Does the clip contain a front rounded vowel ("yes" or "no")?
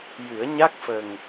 no